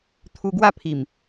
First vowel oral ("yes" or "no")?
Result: yes